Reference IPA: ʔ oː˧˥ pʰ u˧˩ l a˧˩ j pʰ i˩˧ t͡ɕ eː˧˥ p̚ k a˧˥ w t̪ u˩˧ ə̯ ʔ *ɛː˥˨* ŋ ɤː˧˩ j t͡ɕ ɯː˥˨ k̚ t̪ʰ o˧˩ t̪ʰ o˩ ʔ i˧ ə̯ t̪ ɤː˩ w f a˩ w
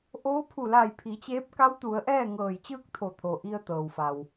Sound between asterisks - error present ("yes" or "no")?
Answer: no